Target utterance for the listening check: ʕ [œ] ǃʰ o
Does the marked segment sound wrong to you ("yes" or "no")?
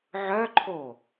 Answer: no